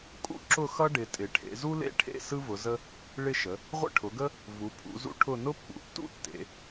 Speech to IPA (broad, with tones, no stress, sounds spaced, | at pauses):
kʼ ṵ˦ ǁ ʊ˦˨ x ʌ˦ ɖ ɪ˩˧ tʼ ɪ˩˧ ʈʰ ḛ˩˧ z u˦ l ḛ˦ ʈʰ ḛ˦˨ s ɯ˦ v ʊ˩˧ z ə˦ | ɭ ɪ˦˨ ʃ ə˩˧ | ʁʷ ə̰˦˨ ʈʰ ʊ˩˧ ɡ ə˦ | v u˩˧ pʰ ṵ˩˧ z ṵ˦ ʈʰ ʊ˦˨ n ʊ˦ pː ṵ˩˧ tː ṵ˦ tː ḛ˩˧